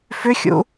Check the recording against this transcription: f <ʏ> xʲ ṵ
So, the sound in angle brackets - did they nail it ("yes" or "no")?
yes